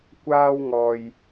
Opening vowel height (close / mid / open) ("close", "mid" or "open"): open